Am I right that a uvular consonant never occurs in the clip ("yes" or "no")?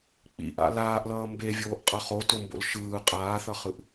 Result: no